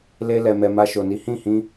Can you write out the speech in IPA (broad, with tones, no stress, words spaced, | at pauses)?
le˧ lɛ˨mɛ˨ ma˧ʃo˨ni˨˦ hĩ˦˨hĩ˧